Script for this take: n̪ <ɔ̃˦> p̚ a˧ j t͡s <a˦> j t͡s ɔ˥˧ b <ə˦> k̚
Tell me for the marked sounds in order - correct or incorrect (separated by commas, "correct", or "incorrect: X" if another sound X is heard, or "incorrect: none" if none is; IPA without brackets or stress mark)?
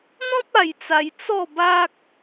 correct, incorrect: a˧, incorrect: a˦